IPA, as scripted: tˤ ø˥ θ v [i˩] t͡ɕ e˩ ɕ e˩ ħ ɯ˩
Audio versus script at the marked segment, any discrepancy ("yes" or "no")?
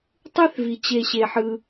no